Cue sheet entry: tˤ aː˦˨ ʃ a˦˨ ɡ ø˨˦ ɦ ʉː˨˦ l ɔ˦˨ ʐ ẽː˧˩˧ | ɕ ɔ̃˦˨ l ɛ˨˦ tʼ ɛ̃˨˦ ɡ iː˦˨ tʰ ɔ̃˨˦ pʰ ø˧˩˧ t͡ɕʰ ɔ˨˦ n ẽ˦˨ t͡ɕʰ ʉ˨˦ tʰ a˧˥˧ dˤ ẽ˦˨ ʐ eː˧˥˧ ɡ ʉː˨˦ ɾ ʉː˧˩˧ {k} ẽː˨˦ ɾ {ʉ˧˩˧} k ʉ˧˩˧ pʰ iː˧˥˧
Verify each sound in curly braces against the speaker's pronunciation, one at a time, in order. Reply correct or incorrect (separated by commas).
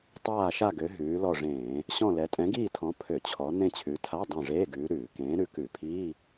correct, incorrect